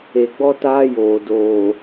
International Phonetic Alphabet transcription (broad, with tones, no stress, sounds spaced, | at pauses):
e˨ ɡ͡b ɔ˦ t aː˦ j oː˨ d oː˨